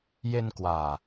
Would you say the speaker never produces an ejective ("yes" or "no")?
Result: yes